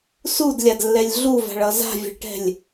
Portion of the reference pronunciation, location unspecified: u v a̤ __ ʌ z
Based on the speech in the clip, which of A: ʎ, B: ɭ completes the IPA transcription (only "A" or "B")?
B